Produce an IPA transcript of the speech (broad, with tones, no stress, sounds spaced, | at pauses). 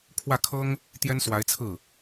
kʰ w ä˥˩ kʰ ɤ˥ ŋ | t̪ j ɛ˥ n s w a˧˥ ɪ̯ t͡sʰ ɹ̩˥˩